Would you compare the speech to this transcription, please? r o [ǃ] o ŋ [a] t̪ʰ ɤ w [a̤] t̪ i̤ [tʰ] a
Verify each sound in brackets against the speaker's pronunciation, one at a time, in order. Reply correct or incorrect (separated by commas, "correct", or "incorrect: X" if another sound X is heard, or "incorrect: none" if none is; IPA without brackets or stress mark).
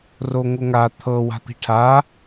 incorrect: ŋ, correct, correct, incorrect: ʈʰ